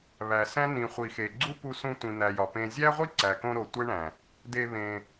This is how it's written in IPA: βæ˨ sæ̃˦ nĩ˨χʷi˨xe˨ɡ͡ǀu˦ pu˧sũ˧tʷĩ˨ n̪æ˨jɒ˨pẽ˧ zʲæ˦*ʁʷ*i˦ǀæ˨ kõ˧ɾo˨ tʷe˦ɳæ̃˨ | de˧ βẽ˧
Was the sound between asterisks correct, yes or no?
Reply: yes